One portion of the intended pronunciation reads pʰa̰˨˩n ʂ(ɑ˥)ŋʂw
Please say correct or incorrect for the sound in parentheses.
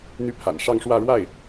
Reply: incorrect